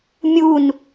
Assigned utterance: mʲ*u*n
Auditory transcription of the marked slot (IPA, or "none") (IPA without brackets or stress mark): u